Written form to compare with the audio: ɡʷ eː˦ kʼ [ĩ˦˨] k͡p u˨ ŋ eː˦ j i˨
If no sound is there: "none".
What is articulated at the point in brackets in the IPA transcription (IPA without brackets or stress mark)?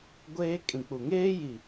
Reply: ĩ˨